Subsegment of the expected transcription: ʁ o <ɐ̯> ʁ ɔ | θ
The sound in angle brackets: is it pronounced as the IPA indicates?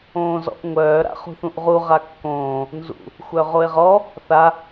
no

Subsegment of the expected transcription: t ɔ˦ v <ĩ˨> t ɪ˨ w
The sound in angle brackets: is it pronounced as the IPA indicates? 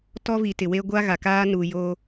no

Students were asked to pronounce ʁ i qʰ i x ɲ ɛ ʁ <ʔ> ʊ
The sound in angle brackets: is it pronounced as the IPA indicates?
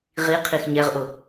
yes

